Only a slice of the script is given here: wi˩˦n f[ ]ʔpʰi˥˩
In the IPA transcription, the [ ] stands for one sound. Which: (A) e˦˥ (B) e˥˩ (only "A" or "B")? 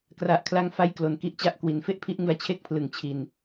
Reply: B